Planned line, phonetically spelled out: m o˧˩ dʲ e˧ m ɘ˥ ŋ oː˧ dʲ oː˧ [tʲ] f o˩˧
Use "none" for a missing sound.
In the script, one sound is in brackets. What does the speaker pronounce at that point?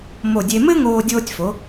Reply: tʲ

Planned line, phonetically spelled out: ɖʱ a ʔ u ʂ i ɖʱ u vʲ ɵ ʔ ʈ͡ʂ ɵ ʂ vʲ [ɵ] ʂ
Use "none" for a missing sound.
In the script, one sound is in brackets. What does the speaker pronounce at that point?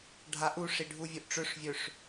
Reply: ɵ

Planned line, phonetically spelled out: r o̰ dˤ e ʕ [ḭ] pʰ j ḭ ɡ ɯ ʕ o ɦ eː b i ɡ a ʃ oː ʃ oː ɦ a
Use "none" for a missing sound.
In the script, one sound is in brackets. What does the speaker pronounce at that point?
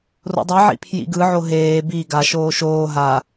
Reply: ḭ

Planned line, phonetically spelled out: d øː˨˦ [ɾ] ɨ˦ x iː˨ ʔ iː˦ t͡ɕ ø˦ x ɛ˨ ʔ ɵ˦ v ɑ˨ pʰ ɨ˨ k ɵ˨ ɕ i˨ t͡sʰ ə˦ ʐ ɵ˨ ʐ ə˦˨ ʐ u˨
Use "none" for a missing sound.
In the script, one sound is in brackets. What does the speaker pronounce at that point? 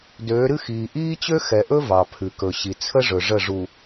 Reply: ɾ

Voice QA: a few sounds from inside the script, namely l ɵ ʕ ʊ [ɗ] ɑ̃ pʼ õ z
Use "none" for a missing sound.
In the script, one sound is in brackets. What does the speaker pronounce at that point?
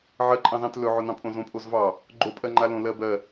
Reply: n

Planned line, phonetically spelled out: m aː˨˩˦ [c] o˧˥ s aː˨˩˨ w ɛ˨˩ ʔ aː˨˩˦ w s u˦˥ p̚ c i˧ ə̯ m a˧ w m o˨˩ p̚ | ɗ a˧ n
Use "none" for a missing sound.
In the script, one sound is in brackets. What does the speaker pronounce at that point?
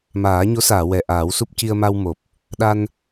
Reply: ɲ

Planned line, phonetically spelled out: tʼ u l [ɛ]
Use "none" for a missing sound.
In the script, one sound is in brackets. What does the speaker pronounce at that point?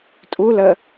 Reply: ə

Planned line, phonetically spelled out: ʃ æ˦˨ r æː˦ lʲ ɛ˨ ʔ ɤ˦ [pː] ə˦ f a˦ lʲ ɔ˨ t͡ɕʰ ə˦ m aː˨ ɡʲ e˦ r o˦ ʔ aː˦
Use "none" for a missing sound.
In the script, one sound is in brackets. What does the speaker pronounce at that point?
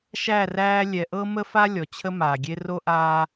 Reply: m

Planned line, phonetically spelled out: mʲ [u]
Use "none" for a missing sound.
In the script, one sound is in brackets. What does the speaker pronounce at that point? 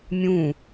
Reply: ũ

